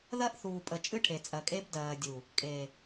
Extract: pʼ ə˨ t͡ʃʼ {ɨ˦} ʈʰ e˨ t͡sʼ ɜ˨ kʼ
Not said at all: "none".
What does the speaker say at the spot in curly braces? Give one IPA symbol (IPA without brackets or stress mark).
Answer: ɨ˦